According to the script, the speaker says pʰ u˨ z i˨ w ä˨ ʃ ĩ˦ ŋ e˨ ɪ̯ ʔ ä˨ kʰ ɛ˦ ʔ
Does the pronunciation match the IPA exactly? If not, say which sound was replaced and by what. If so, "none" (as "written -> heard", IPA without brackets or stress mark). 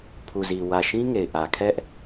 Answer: none